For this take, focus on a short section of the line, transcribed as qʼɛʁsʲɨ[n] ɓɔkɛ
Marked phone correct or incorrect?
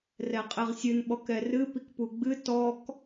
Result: correct